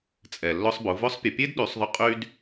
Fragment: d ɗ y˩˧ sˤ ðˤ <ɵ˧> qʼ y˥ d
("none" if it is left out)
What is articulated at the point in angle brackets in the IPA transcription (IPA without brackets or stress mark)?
ʊ˧